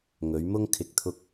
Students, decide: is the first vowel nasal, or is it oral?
oral